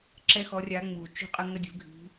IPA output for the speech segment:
ǁɛ˦xɔ˨˦rʲa˨˦ŋ͡muː˩ t͡ʃṳ˦qʼə˦ ŋɐ˦dʲṳ˨˩˦ɡʱi̤˨˦

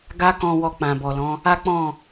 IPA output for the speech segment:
ɡa˦kɔ̃˧ wɔ˧k͡pã˨bɔ˨lɔ̃˨˦ | a˦k͡pɔ̃˦˨

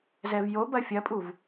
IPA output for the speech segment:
zɛvjo bɐfʲɐpʼuv

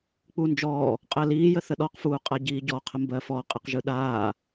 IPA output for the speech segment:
k͡pund͡ʒɔː | qʼɜliː jəθəɗɔq fuːqʼaɟiːɟɔ qʰəmbɜfɔ qʼɯqʒɯɗaː

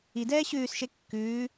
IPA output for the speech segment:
idɛː ɕʉːsʃe kːʉː

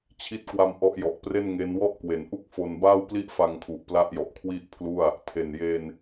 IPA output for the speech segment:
t͡ɕʰi˦˥t̚kwa˧m ʔɔ˦˥ʔjɔ˨˩ʔpre˥˩nŋe˦˥n wɔ˥˩ʔkwe˩˦nʔu˥˩k̚fo˧n ba˥˩wpli˥˩ʔ fa˧ŋkʰu˨˩ʔ pla˥˩ʔjɔ˨˩ʔkʰwi˥˩ʔpʰlu˥˩a̯ | tʰe˨˩nje˧n

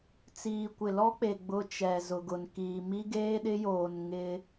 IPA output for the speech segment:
t͡siː˨kʷɪ˨lɔ˦k͡pe˨ ɡ͡bʊ˦t͡ʃɛ˨ zʊ˨ɡʊ˨nkiː˨ mi˦ɡeː˦ɗɪ˦joː˨n ŋɪ˦

